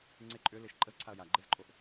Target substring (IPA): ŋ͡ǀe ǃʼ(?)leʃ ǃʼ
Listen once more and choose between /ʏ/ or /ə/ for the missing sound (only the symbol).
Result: ʏ